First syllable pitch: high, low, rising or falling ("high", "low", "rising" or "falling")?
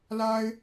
high